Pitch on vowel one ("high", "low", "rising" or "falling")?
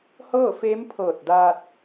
falling